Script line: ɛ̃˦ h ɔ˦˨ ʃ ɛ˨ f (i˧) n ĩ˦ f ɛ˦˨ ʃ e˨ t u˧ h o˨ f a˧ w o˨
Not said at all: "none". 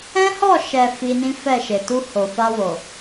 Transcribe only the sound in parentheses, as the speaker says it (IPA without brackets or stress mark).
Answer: i˧